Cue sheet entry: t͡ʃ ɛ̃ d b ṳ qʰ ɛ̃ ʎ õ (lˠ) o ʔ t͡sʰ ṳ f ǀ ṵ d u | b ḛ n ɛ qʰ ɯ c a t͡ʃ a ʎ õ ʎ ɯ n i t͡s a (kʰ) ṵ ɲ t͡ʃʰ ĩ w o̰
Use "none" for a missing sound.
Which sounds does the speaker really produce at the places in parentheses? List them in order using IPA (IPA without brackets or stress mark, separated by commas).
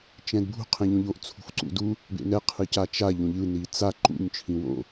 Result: ʎ, ǃ